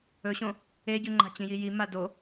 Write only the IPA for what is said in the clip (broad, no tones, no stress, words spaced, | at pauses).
ɵɕõ | eɟʉŋ͡ǃa̤ t͡ɕĩjiji mado